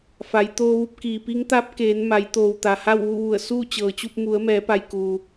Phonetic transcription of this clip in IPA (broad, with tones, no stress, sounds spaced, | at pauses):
f a˩˧ j t̪ oː˧ ʋ u˧ p̚ k iː˩ p i˧˥ ŋ t̪ a˧˥ p̚ k eː˩˧ n m a˩˧ j t̪ oː˩ w t̪ a˩ h a˥˨ w ʋ u˥˨ ʋ u˧˩ ə̯ s uː˥˨ t͡ɕ ɤː˩ t͡ɕ u˥˨ p̚ m u˩˧ ə̯ m ɛː˩˧ p a˩ j k uː˩